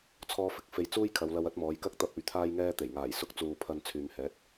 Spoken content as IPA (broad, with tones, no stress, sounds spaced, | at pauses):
t͡sʰ ɔː˥ f ɪ˧ k̚ f e˧ j t͡s uː˥ j kʰ ɐ˨˧ w l ɐ˧ w ɐ˥ t̚ m ɔː˨˧ j k ɐ˥ k̚ t̪ ɐ˧ p̚ ɵ˨˧ ɥ t̪ʰ aː˧ j ŋ ɛː˧ t̪ e˨˩ j ŋ aː˨˩ j s ʊ˧ k̚ t͡s uː˨ pʰ ɐ˧ n t͡sʰ yː˨ m h ɛː˨˥ t̚